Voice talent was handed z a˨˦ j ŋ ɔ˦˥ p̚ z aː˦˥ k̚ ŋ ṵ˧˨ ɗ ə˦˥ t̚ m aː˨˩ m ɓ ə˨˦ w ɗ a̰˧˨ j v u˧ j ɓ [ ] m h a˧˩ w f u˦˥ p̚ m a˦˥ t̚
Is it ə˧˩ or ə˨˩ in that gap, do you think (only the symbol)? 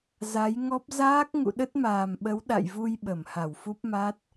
ə˧˩